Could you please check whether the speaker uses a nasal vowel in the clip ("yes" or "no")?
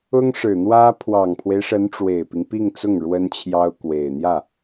no